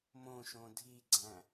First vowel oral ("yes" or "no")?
no